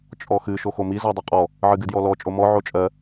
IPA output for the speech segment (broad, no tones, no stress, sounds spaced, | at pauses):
t͡ʃʼ ɔ x ɨ ʃ o x o m i z ɔ dˤ ɨ qʼ ɔ | ʕ ɨ ɡ ɨ d j ɔ l ɔ t͡ʃʼ o m ɔ ʕ o t͡ʃʼ ɜ